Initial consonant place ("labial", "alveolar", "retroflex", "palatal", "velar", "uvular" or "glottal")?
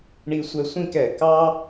retroflex